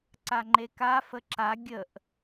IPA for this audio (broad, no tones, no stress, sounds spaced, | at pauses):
ǀ a ŋ͡ǃ e k a f ə ǁ a ɡʲ ə ʔ